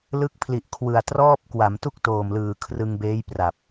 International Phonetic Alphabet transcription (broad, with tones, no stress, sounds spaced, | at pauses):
l ɯ˦˥ k̚ pʰ l i˨˩ ʔ kʰ w ɯ˨˩ a̯ t r ɔː˥˩ p̚ k w a˩˦ m t u˥˩ k̚ t oː˨˩ m l ɯː˨˩ kʰ r ɯ˧ ŋ b eː˦˥ j p r a˨˩ p̚